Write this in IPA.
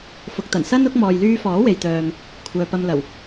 fʊ˨k̚ t̪ɐ˨˩nsɐ˥nʊ˨˥k̚ mɔː˨jlyː˧fɔː˨˥ we˨jt̪œː˨m | kʷʰœː˨pɐ˧mlɐ˨˩w

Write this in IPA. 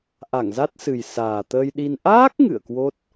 ʔa˧˩ŋza˦˥t̚sɨ˨˩j saː˨˩t̪əː˧jɗi˧n ʔaː˦˥k̚ ŋɨ̰˧˨ə̯kwo˦˥t̚

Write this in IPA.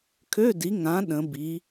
kʰø˧˥˧di˩˥ŋã˩˥ ɗə̃˩˥bi˩˥

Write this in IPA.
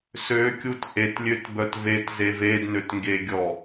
søkʲut ʔetlʲøtbœt vetze vednøtŋɡeɡʲɔ

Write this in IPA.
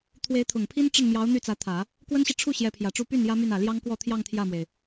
t̪ʰwe˧˥ɪ̯ t̪ʰʊ˨˩ŋpʰi˥nʈ͡ʂə˥˩nmjɑ˧˥ʊ̯ n̪y˥˩t͡sä˧˥t̪ʰä˨˩˦ | kwə˥nɕi˨ ʈ͡ʂʰu˥˩ ɕjɛ˧˥pʰjä˨˩ʈ͡ʂu˥˧ py˥˩n jä˥my˥˩n ä˨˩ ljɑ˥ŋkwɔ˥˧t̪ʰjɑ˥˧ŋ t̪ʰjä˥˩mwe˩ɪ̯

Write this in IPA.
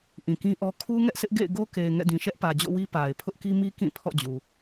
ʔĩ˨kĩ˦ʔɔ˦ kʰu˦ŋɛ˦ʔsɪ˦ʔ ɡḛ˦˨ɪ̯ɡo˦ke˨ɪ̯ ŋɛ̰˦˨dĩ˨ ʃɛ˦ʔpä˨d͡ʑo̰˦˨wi˦ pa˨ɪ̯ pʰʊ˦ʔki˦mi˦ kĩ˦˨ pʰɔ̰˦˨d͡ʑu˨

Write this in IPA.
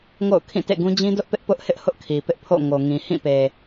ŋo̰˦˨ʊ̯kʰĩ˦˨tḛ˦˨ɡũ˦ d͡ʑĩ˦dʊ˦ʔpɪ˦ʔ pʊ˦ʔhɪ˦ʔ hʊ˦ʔkʰi˨pɪ˦ʔ pʰo̰˦˨ ŋo˨ŋĩ˨hĩ˦˨pe˨

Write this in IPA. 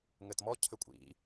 ŋɘtmɔ cʰɘkʷʼḭ

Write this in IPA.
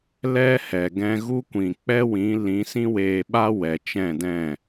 lɛ˦ hɛ˨ ɡɛ̃˧ɣu˦kʷĩ˨ k͡pɛ˦wĩ˨˦ lĩ˨˦sĩ˦ weː˧ɓa˦wɛ˨ t͡ʃɛ̃˦˨dɛ̃˦˨

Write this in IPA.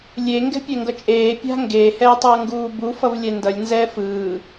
lʲe ŋɡɛ̤pʲɛŋɡʌt͡ʃʼeː pʲa̤ ŋɡeː hɛːtˤʌːŋɡuːbu fʌvlʲɛndʌlʲ nzɛfɯː

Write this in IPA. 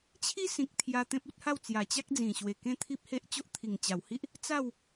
t͡ɕʰi˦sĩ˨k̚ t̪ʰja˧t̪ẽ˦p̚u˦t̚ha˥˧w t͡sja˨˩t͡ɕa˦k̚d͡zĩ˨˩ ɕwe˨˩kẽ˦t̪ʰi˦p̚ he˦ʔt͡ɕo˦ʔ t̪ʰi˨˩ŋt͡ɕa˨˩whi˦ʔ | t͡sa˥˧w

